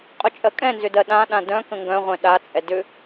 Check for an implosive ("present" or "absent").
present